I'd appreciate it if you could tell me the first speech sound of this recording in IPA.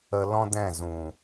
ə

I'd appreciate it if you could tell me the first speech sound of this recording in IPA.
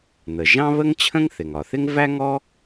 n̪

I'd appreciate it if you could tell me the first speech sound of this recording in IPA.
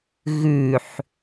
ɣ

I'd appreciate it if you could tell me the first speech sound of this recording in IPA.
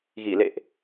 ɣ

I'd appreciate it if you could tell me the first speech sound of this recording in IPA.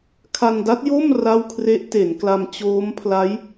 kʰ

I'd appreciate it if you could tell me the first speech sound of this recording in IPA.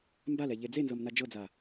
m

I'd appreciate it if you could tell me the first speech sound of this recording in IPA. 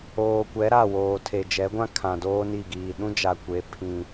oː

